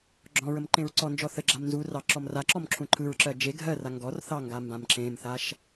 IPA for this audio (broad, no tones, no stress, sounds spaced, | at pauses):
ɡ͡ǁ ɔ̃ ɹ ə m ǃ ẽ ɹ ǀ ɔ n d͡ʒ ɔ θ ə ɡ͡ǁ a m n z u r ɑ ǁ ɔ m r a ǁ ɔ m ǁʰ ũ ǃʰ ɯ ɹ ǁ ɜ d͡ʒ e ɡʱ ɜ r a ŋ ɡ ɔ r θ ɑ ŋ ɡ a m b ã m ǁ ẽ m θ a ʃ